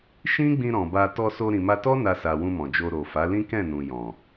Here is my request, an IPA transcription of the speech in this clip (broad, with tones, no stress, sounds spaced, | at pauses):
ʃ ĩ˦ ɡ͡b ĩ˧ ɾ ɔ̃˨ b a˧ t ɔ˧ s o˧ ɾ ĩ˨ m a˧ t ɔ˦ n a˧ s a˨ w ũ˧ m ɔ̃˨ d͡ʒ o˧ ɾ o˨ f a˨˦ l ĩ˦ k ɛ̃˦˨ n ũ˨ j ɔ̃˨